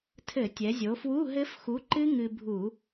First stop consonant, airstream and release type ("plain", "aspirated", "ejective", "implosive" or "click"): aspirated